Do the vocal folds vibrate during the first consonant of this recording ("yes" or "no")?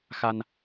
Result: no